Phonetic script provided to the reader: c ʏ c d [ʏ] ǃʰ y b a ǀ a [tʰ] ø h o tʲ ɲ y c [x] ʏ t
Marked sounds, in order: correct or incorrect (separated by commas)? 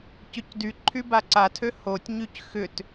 incorrect, correct, correct